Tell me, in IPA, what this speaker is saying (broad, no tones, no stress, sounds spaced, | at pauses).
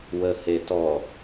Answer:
w ə h e t ɔ